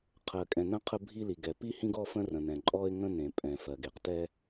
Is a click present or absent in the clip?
present